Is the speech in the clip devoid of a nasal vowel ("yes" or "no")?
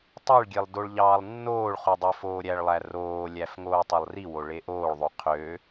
yes